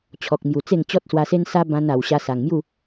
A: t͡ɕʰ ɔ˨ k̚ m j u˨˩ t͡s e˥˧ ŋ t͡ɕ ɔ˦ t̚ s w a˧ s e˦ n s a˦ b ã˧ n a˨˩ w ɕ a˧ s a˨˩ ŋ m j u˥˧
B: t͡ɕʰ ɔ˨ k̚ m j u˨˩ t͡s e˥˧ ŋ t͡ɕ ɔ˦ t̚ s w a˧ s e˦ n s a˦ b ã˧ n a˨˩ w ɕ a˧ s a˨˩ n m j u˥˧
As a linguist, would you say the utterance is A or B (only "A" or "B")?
A